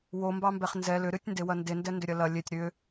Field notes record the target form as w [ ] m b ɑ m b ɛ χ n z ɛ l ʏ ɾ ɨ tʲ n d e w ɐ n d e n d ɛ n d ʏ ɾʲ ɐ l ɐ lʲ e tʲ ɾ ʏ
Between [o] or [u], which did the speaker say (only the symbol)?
o